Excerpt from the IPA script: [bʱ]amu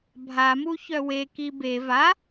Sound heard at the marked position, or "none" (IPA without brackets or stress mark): bʱ